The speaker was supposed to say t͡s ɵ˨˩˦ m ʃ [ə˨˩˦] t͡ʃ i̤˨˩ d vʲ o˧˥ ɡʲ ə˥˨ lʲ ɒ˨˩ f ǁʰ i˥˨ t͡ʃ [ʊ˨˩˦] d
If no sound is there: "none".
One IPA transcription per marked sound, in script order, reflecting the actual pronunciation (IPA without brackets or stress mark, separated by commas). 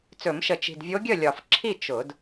ə˨˩, ʊ˨˩˦